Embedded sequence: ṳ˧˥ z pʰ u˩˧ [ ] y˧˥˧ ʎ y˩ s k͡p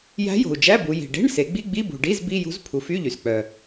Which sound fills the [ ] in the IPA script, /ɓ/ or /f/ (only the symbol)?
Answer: f